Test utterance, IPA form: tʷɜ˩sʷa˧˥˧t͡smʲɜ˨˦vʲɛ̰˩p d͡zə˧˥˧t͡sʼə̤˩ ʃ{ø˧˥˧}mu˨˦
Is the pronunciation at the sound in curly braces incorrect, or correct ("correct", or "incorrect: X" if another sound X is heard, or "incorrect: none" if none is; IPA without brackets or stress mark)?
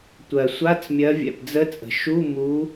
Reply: incorrect: u˧˥˧